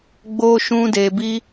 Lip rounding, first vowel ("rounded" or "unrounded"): rounded